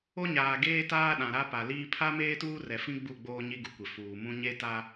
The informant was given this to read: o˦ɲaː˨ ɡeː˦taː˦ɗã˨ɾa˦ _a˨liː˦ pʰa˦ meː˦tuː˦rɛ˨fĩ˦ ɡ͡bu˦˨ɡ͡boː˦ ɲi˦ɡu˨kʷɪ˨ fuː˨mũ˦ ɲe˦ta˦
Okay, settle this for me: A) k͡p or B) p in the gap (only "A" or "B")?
B